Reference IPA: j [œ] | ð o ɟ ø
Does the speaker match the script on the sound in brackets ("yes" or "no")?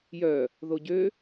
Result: yes